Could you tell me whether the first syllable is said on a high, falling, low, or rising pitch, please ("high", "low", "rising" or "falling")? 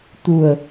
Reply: low